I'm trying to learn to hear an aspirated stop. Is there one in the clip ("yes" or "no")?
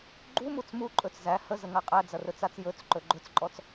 no